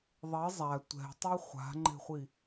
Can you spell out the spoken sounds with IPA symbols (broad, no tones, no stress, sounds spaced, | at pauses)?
ðˤ e zˤ æ tʷ ɛ̤ tˤ i χʷ a̤ ŋ͡ǃ e̤ χʷ i